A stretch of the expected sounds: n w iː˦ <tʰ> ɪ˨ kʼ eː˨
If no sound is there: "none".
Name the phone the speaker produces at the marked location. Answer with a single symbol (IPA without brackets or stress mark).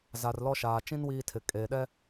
tʰ